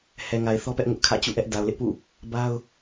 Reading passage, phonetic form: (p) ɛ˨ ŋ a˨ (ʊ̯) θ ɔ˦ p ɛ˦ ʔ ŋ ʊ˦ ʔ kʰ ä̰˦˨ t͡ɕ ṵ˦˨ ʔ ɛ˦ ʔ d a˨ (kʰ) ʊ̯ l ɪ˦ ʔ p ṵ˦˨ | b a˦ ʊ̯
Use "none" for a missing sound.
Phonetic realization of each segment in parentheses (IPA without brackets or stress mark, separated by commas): h, ɪ̯, none